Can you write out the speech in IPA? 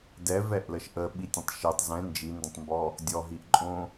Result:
dɛvɛʔləʃ ʔəɓitʲə̃tˤ ʃitˤ zɛ̃ nd͡ʒində̃tˤmbɔ | dʲɔɦiʔǃʼõ

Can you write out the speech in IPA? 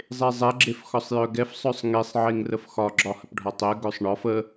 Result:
zˤezˤɛ ɡ͡ǁefxɒsˤjœɡɛf sˤœsˤŋesˤ ʕeŋrəfxɒ ɡ͡ǁɒhəpɖʱɒtˤɛ ɡœsˤɳɒf ə

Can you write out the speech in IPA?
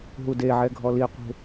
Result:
ɦudeʕɛ ɡʱɔliqʷe̤

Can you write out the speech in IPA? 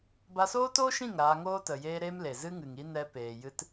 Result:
ba˧soː˦toː˦ʃĩ˦˨ŋ ɾaː˧ŋoː˦ tə˨jeː˦ɾe˦m le˨zɨ˦ ŋɨ˨ŋi˦ nɛ˧peː˨jɨ˧t

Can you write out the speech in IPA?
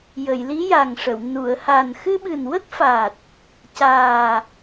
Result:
jə˨˩˨jli˧˥ja˨˩ŋʂə˨˩˨w nu˨˩˨ə̯ha˨˩n xɨ˧ɓɨ˨˩nwə˦˥k̚fa˨˩t̚ | caː˨˩

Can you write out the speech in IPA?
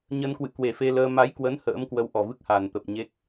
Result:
ɲə˧nkwɨ̰˧˨ kwe˨˩fe˧ləː˧ ma˨˦jkwə˨˦n hə̰ː˧˥mkwə˧wʔɔ˨˩vɨ˦˥k̚ ha˨˩nt̪ə˨˩p̚ɲe˦˥k̚

